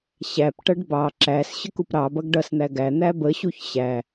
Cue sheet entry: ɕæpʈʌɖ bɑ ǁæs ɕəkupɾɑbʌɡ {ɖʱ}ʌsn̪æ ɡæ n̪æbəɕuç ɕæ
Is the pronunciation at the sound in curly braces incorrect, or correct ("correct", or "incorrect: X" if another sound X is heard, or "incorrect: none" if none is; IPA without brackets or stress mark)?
incorrect: ɖ